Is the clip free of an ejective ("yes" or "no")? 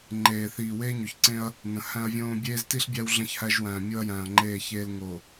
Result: yes